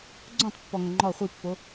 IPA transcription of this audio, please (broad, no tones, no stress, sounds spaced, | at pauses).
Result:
ɡ͡ǀ õ tˤ pː ɔ ŋ ʌ ŋ͡ǃ ɔ χʷ i pː o